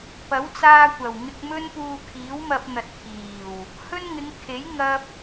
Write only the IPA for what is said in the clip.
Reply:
pɐ˨˥wt͡saː˧kʷɐ˨˩wŋɪ˧k̚ mɵ˥npuː˧ kʰiː˨˥wmɐ˧p̚n̪ɐ˨t̚ kʰiː˨˩w | hɵ˥nŋɪ˨˧ŋ kʰe˨˥j ŋɐ˥p̚

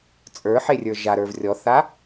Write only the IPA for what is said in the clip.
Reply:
t͡sʼə˞ħerʲə˞ ʒaɾə˞v rʲɔθa

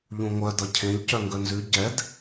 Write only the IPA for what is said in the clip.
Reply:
ʎũŋʷœ dʌcʰẽʎ cœŋɡœnzʉ ɟɛd

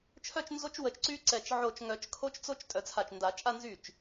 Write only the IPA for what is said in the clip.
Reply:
t͡ʃʰœ˥˧t͡ʃnzo˦˥t͡ʃ wə˧˩t͡ʃǀy˦˥ ǀɛ˧˩t͡ʃ ʕo˧˩t͡ʃŋœ˨˩˦t͡ʃkʰo˦˥t͡ʃt͡so˦˥t͡ʃ tʼœ˧˩t͡sʰa˧˩t͡ʃnda˨˩˦ t͡ʃʼa˥˧ nzy˥˩t͡ʃ

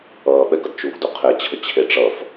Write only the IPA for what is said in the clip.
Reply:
ʌːɓɛɡʌd t͡ʃuːɡduqʰet͡ɕʰə t͡ɕʰeʈ͡ʂʌf

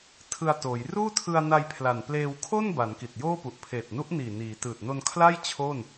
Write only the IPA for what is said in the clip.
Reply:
tʰɯ˧a̯toː˩˦j ruː˥˩tʰɯ˧a̯na˧j pʰla˨˩n pleː˧wkʰo˥˩n ba˩˦nki˨˩t̚joː˥˩pu˨˩ʔ pʰeː˨˩t̚nu˦˥ʔniː˨˩niː˩˦ tɯː˨˩t̚no˧nkʰla˥˩j t͡ɕʰo˥˩n

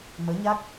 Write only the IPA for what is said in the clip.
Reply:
məː˨˦ɲa˦˥k̚

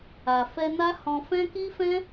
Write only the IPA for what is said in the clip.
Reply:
a˨fɛ˧na˦ hɔ̃˧ fɛ̃˦ki˦fɛ̃˦

